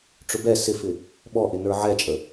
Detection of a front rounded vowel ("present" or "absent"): absent